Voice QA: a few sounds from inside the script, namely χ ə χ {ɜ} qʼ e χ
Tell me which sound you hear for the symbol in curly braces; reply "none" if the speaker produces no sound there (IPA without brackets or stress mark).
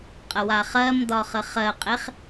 ɜ